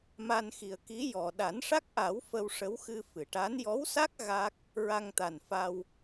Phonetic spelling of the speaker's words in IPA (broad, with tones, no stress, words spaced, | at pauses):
ma˧nxi˨˩ə̯ki˧˥ jɔ˨˩ ɗa˨˩˦nʂa˦˥k̚ʔa˨˩˦w fə˧wʂə˧˥wxɨ˧ fɨ˨˩˨ʈa˧˥n jɔ˧˥wsa˦˥k̚ ɣa˦˥k̚ | ɹa˧ŋt̪a˨˩n fa˧w